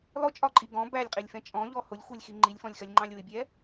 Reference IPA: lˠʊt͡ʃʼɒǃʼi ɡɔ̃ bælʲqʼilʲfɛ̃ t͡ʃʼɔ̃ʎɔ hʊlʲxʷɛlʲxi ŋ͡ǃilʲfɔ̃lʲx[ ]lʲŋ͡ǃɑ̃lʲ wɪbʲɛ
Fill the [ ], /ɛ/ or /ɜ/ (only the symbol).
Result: ɜ